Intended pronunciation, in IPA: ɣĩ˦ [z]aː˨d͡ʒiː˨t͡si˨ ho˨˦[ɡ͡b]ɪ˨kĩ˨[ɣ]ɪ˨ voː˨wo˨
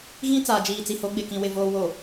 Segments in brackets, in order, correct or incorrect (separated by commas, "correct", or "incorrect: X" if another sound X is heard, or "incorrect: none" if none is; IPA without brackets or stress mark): incorrect: t͡s, correct, incorrect: w